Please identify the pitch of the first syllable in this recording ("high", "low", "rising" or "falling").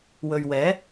low